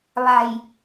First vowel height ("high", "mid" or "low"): low